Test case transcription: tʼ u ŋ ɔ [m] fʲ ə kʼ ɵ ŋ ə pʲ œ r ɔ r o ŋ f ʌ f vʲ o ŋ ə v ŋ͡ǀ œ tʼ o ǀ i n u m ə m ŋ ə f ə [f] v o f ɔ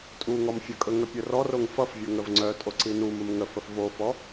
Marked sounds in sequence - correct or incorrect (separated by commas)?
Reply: correct, correct